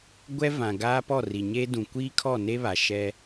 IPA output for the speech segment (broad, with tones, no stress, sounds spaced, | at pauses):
ɡʷ ɛ˦ v ã˨ ɡ aː˦ p ɔ˦˨ r i˨ ɲ eː˦ d ũ˨ kʷ iː˦ kʰ ɔ˦˨ n e˦ β a˨ ʃ ɛ˦